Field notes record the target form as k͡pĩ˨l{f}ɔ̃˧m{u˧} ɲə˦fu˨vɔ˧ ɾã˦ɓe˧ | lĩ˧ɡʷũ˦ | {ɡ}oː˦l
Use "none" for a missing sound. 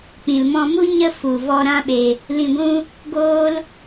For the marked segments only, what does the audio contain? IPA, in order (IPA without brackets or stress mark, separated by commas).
m, u˦, ɡ